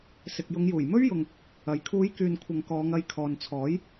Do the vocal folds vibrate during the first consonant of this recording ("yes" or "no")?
no